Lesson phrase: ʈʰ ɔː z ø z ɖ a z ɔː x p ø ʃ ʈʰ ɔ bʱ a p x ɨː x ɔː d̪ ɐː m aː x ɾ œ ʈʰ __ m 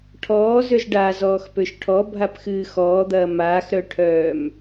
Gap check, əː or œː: œː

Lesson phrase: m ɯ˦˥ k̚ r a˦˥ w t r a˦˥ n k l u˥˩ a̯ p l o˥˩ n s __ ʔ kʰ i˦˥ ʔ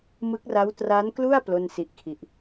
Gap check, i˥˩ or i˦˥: i˦˥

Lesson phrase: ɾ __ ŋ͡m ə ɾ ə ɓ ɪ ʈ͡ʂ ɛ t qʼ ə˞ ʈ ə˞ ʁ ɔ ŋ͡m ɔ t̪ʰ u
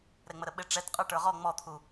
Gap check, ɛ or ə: ɛ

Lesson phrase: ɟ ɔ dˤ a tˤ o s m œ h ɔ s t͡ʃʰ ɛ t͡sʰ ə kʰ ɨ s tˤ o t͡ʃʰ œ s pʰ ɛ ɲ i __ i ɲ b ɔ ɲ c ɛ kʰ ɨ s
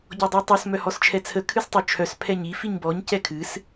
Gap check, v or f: f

